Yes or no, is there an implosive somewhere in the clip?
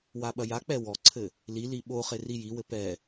yes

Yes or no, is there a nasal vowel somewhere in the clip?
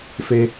no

